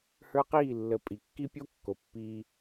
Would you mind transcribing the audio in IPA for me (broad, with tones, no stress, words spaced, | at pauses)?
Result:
hə˞˦qiː˦˨lːə˨˦ pʼi˨kːi˦pʲo˦ kːo˨pːiː˧